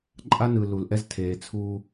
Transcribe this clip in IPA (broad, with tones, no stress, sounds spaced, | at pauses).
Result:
ǃʼ a˦ n ɯ˨ l u˨ l ʔ ɛ˦ z tʰ eː˨ t͡sʰ uː˦